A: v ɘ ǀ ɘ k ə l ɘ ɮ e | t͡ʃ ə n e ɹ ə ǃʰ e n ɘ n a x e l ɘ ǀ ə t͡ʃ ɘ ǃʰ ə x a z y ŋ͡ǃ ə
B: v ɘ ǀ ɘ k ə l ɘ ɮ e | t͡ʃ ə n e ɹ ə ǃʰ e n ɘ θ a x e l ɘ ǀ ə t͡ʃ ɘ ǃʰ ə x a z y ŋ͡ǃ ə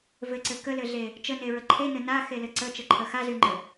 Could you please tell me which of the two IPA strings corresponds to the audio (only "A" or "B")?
A